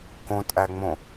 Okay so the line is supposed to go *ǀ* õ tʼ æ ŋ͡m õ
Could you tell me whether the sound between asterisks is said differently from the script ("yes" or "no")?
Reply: yes